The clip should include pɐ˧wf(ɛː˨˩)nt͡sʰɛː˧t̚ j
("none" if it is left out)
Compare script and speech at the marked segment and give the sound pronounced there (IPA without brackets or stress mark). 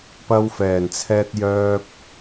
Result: ɛː˨˩